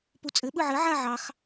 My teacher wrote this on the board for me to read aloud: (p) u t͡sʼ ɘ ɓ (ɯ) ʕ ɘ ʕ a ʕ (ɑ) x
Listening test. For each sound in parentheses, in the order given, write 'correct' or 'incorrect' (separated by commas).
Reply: correct, correct, correct